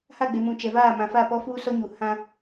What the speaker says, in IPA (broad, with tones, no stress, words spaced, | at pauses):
ha˦˨ɡ͡be˨mũ˨ t͡ʃɛ˨vaː˦˨ mã˨fa˦˨ pɔ˦fuː˦sɔ˦ɲu˨ hã˦